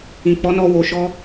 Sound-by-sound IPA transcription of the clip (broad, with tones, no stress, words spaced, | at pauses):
ĩ˨k͡pɔ˨˦nɔ˧ wo˨ʃɔ˧